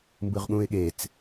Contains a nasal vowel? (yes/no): yes